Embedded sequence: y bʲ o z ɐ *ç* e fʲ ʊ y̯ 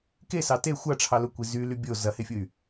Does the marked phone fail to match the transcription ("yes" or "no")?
yes